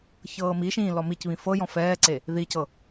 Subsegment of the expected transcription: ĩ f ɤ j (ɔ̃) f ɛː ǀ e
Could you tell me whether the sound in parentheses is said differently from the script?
no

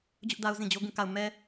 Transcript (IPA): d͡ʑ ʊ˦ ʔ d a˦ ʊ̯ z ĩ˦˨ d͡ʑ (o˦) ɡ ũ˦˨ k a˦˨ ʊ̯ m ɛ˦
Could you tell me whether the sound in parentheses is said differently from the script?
no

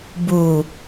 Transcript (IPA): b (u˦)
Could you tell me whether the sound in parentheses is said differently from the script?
yes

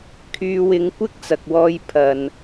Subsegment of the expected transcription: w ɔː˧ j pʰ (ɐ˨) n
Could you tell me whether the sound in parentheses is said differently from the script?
no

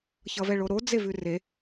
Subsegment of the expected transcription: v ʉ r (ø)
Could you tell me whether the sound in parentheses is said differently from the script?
yes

